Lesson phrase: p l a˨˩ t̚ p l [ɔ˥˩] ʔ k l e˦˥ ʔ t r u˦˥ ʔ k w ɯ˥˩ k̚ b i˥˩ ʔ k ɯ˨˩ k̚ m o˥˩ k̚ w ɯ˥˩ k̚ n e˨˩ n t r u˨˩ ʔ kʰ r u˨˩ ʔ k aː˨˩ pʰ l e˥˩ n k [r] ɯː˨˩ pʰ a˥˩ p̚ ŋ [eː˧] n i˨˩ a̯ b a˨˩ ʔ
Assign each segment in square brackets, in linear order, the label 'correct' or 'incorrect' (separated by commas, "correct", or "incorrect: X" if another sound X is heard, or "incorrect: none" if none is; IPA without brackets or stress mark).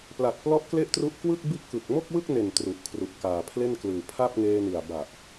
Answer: incorrect: ɔ˦˥, incorrect: l, correct